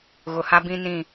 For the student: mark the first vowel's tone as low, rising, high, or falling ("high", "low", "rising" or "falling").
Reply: low